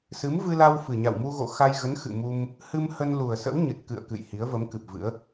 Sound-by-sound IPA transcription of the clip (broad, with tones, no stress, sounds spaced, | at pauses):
s ɨ˨˦ m v ɨ˧ l a˧ w f ɨ˨˩ ɲ a̰˧˨ w m u˧ ɣ o̰˧˨ x a˧ j ɣ ə˨˦ n x ɨ̰˧˨ m u˧ m | h ɨ˧ m h ə˧ n l u˨˩ ə̯ s ə̰˧˥ w ɲ ɨ˨˩ t̚ k ɨ̰˧˨ ə̯ k ɨ̰˧˨ j h i˨˦ ə̯ v ə˨˦ m k ɨ˨˩ p̚ v ɨ̰˧˥ ə̯